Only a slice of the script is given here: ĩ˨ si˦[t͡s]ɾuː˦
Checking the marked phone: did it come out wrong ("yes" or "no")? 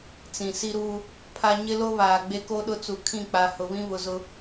yes